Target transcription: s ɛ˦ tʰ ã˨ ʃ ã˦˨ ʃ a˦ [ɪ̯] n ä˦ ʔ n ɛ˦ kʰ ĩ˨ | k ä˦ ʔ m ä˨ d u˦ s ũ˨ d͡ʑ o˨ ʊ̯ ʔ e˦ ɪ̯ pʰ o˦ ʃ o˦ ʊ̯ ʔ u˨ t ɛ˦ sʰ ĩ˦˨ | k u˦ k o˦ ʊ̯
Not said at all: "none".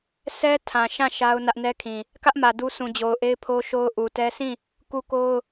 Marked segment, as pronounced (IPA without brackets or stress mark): ʊ̯